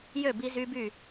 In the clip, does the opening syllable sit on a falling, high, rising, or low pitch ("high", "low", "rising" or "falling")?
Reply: falling